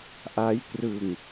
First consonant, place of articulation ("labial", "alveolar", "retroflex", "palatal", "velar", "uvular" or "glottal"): glottal